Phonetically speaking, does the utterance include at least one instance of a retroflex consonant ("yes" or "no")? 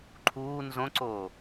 no